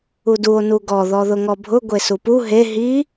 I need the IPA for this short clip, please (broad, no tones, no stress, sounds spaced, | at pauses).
u d u o̯ n u ɡ ɔ ð ɔ ð ʊ ŋ ɔ bʱ ʊ ɡʷ e s u p u ɦ e ɦ i